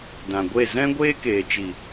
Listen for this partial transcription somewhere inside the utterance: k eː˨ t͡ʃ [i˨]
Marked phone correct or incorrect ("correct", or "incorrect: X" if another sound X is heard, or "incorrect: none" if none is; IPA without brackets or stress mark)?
correct